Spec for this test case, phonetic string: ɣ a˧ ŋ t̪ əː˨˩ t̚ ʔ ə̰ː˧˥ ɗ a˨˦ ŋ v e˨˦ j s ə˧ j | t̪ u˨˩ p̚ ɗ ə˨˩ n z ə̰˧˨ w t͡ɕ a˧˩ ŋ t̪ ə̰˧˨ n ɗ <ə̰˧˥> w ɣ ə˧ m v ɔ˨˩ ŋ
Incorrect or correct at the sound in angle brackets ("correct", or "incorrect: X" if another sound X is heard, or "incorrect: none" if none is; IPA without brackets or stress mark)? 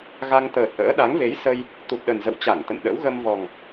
correct